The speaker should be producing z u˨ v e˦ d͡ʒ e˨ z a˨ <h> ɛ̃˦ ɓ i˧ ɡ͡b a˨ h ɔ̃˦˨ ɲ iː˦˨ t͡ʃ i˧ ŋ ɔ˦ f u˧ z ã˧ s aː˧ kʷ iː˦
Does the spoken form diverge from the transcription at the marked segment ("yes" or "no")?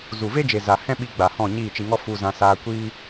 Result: no